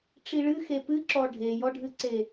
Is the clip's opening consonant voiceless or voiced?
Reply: voiceless